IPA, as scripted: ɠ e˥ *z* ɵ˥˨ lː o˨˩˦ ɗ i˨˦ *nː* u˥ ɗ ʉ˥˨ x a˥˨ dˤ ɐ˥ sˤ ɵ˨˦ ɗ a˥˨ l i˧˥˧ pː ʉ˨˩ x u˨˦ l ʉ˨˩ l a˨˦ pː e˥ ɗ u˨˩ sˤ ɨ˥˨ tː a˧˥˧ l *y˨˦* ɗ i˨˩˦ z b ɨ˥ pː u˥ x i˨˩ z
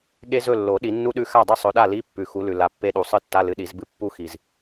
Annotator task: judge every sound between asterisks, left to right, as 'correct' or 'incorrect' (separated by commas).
correct, correct, incorrect